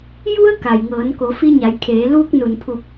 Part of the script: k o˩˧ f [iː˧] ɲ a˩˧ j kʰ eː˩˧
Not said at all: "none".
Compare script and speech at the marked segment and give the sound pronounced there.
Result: i˧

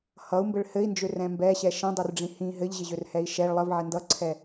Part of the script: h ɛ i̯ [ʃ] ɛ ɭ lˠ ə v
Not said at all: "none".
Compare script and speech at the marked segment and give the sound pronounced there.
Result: ʃ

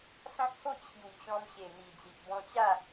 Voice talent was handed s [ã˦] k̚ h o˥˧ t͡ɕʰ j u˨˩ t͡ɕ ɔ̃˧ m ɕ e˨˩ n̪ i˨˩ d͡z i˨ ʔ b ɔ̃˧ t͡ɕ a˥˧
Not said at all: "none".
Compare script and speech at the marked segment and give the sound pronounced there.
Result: ã˦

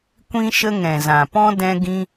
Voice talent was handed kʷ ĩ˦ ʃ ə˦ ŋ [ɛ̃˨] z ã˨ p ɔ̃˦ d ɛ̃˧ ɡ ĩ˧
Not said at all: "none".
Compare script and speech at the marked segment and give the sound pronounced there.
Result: ɛ̃˨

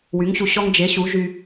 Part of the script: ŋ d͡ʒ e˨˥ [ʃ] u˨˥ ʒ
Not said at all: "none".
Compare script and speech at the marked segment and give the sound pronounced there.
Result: ɕ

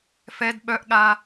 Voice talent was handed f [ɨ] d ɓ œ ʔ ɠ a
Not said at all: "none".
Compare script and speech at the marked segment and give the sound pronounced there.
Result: ɛ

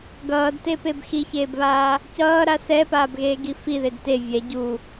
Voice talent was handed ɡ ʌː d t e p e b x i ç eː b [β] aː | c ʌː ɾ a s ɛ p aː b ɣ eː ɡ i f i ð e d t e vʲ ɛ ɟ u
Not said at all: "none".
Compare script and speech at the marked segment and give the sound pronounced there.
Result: β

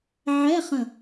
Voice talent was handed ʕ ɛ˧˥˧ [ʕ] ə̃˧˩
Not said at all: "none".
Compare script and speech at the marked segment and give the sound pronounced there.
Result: χ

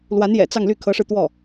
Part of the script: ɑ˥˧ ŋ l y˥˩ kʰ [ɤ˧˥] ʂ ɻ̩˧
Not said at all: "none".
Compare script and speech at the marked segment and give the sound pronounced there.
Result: ɤ˧˥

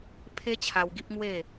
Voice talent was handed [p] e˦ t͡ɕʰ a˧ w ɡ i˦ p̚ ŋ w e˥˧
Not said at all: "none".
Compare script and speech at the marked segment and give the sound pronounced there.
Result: pʰ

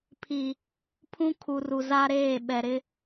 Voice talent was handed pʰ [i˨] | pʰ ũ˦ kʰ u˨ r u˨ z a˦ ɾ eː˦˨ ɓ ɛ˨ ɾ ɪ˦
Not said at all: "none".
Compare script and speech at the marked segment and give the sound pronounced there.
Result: i˨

